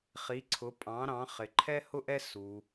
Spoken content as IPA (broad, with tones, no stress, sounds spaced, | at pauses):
χ i˩˥ ǀʰ ʊ˩˥ pʼ ɑ̃˩˥ ɾ ɑ̃˩˥ χ ɪ˨ ǃʰ ɛ˥ h ʊ˥ ʔ ɛ˥ s u˨